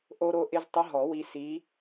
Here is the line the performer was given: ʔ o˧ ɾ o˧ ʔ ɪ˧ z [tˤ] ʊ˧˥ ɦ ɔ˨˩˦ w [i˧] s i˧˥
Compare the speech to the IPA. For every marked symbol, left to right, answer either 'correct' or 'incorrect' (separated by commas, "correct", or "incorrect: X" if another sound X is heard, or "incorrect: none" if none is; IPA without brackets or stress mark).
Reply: correct, correct